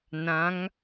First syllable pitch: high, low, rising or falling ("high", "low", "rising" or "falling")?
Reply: rising